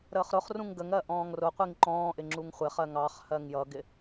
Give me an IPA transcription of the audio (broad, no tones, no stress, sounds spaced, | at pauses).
ɾ əː χ ɾ ʊ χ r ũ ŋ ɡ ə ŋ ɜ ʔ ɔ̃ː ŋ r ʊ qʷ i ŋ ǃ ɔ̃ː ʔ ɪ ŋ͡ǁ u ŋ χʷ ɪ χ ɜ ŋ ɑ χ h ɜ ŋ j ʌ ɡ ɪ